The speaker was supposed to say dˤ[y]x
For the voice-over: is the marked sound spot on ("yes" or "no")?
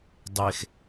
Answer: no